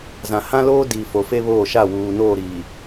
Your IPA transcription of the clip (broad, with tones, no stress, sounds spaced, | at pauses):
z ã˨ h ã˦ l oː˦ d iː˨ f o˨ f e˦ β oː˦˨ ʃ a˦˨ w uː˨ n oː˦˨ ɾ iː˨